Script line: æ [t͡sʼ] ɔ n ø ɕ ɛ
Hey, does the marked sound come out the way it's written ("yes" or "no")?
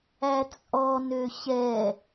yes